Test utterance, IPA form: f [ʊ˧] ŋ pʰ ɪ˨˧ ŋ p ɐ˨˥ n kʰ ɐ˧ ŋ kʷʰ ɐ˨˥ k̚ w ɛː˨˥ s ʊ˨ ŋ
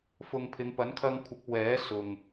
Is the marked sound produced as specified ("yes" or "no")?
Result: no